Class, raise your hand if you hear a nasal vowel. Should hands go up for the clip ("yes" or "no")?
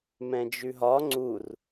yes